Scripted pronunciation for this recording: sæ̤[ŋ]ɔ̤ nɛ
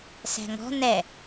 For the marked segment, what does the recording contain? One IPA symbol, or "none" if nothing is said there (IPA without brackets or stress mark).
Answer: ŋ